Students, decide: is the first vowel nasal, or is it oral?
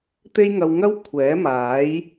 oral